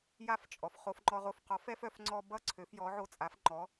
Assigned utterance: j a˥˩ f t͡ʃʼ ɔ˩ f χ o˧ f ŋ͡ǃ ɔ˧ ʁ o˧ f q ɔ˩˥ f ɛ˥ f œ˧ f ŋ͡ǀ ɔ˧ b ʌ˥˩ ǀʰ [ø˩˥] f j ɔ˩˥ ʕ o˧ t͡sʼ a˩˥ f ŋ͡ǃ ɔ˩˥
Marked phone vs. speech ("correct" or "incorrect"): correct